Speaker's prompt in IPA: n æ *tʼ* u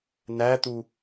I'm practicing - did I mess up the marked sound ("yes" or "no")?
yes